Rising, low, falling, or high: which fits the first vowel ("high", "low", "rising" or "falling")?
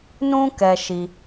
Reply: high